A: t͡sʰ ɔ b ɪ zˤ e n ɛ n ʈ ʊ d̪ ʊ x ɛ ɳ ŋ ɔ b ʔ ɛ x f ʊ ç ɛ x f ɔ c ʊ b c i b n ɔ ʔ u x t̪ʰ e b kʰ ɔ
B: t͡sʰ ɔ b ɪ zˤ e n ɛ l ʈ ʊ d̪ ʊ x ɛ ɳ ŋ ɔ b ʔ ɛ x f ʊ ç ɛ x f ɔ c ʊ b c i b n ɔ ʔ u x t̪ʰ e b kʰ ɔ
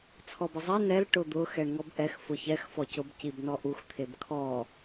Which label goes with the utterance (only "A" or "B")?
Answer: B